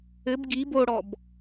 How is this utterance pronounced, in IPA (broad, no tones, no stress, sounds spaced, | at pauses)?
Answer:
ɘ b ɡ i b o ɽ ɔ b